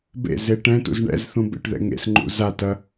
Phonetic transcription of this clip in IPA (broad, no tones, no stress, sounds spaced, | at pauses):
b ḛ z e ʈ ɛ̃ t ṵ z ɳ ɛ̰ z θ ũ b ḛ ʈ ð ɛ̰ ŋ ḛ s ŋ͡ǃ ṵ z a t ɐ